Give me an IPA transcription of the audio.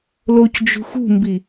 loc d͡ʒṳxṳmbi

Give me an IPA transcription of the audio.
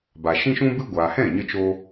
ba˨ʃĩ˦ʃũ˦bɨ˦ ɡʷaː˨hɛ̃˦˨ɲə˧t͡ʃoː˧

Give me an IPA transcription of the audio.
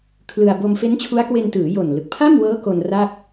kʰlɯ˧a̯ bo˧m fe˦˥nt͡ɕʰu˦˥a̯kwe˧ntɯː˩˦ jo˨˩n lɯ˨˩k̚pʰa˥˩mwɤː˦˥ ko˧n ra˥˩k̚

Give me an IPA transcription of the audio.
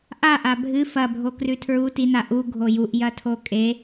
ʔaʔa bʱɨ fɐbʱo krʉtʰɹu tina ʔu ɡʱojuʔ jɐtʰokʼe

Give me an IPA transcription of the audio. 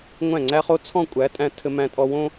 ŋʷæ̃˥˩ŋ͡ǀæ˥χo˥ t͡sʰɔ̃˥˩kʷʼæ˩˥tʼæ̃˧ tʰɘ˧mæ̃˧ tʼɔ˧wõ˥

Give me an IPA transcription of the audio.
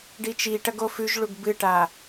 ɖit͡ʃiʈɐɡ ofʉʒɭuɡ bɨʈa

